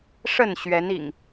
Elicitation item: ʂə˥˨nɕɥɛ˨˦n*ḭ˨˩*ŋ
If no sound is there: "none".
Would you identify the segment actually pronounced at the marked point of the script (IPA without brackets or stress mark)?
ḭ˨˩